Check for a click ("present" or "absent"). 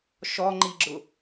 present